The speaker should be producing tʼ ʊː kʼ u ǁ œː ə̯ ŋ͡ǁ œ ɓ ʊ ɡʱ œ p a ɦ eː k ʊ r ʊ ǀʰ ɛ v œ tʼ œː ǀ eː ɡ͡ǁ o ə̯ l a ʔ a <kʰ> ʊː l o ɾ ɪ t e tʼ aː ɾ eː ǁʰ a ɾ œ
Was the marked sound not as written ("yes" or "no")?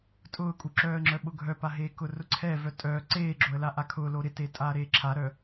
no